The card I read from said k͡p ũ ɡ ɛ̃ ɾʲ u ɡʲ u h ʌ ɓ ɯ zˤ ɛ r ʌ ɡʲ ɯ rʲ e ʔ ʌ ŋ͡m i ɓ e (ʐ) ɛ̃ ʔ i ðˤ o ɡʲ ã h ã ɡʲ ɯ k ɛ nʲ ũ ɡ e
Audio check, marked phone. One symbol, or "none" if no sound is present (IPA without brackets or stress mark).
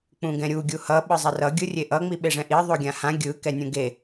ʐ